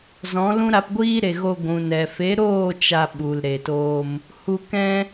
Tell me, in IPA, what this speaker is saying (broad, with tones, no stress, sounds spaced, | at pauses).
z ɔ̃˨˦ l ũ˦ ɾ a˧ p ɡʷ iː˦ ɾ e˨ ɣ o˧ ɡʷ ũ˨ n ɛ˨ f e˨˦ ɾ oː˦˨ t͡ʃ a˧ ɓ u˨ l ɾ e˨ t oː˧ m | h u˧ k ɛ̃˦